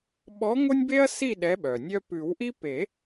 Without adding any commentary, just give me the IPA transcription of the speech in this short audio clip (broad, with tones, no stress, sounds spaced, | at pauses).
ɓ ɔ˨˥ ŋ o˦ nʲ b e˦ ɐ̯ s i˥˨ ɗ ɛ˨˥ ɓ œ˩ nʲ œ˦ p ʉ˨˩˦ w ʔ i˦ p e˨˩˦